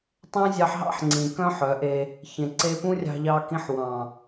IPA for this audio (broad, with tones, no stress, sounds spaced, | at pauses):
tˤ ẽ˦ zʲ ɑ˧ ħ ɦ ɑ̰˦ ħ ŋ͡ǀ ĩ˨ k œ̃˦ ħ œ˨˦ ʔ e˧ | ç ẽ˨ ǀ e˧ p ũ˦ rʲ ɑ̤˧ ʎ ɑ˧ k ĩ˧ ħ w ɑ̃˨